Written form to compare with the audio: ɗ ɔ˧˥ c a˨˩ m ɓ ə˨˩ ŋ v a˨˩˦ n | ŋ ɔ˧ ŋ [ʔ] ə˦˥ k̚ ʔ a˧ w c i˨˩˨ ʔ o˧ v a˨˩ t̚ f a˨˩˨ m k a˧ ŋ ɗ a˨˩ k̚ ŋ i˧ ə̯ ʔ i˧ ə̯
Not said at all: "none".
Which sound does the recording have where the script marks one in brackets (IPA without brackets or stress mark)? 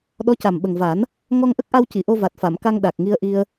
ʔ